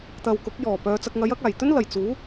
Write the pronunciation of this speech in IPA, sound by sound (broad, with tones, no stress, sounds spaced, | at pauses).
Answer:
t̪ ɐ˨ w k ʊ˨˥ k̚ j ɔː˨˩ p œː˨˧ t͡s ɐ˧ k̚ ŋ ɐ˨˥ j ɐ˨˥ k̚ aː˨˩ j t̪ ɵ˥ n l ɐ˨˩ j t͡s uː˨˥